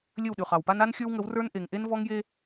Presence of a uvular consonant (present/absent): present